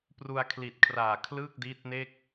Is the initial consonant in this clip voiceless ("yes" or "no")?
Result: yes